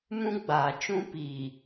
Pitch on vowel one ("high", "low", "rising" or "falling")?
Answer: high